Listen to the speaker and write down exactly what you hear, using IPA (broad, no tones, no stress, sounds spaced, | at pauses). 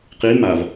q i m a v